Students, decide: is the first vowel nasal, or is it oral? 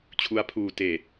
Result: oral